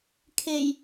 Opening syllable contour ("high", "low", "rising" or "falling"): low